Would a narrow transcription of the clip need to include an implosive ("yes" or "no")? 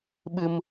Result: yes